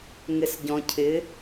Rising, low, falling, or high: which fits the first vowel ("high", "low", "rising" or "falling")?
low